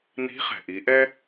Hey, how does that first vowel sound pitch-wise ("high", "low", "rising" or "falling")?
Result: rising